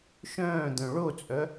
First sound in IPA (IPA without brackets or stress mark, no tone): ʃ